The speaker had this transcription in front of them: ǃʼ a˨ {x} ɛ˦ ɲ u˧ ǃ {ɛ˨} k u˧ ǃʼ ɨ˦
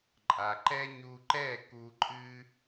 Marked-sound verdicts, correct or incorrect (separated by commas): incorrect, incorrect